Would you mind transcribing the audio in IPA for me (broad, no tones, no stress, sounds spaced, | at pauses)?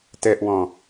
t ɛ ʔ w ɔ̃